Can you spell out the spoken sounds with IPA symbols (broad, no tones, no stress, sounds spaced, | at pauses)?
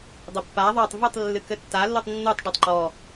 dˤ ɘ pː a ðˤ a tˤ v ɨ tˤ lː ɨ k ɘ tː a lː u tˤ nː u tˤ ɖ u tˤ ǃ ɔ